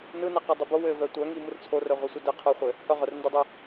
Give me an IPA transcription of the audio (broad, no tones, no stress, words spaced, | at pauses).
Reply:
nɯnɛqɯ dˤɘbo wɘvœ tʷœŋi mɯrt͡sʰorœ ʁʷɯsʷidɘ qʰɯχʷɘ | hœ ʁœrndɯdˤɯ